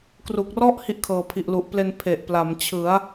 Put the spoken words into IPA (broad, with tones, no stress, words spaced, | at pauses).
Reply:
kru˨˩k̚rɔ˥˩ʔ hi˥˩ʔkʰɤː˨˩pʰi˨˩ʔlu˨˩ʔ ple˧n pʰe˨˩ʔpla˩˦mt͡ɕʰɯ˩˦a̯